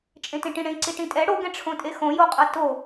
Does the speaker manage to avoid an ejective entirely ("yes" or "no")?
no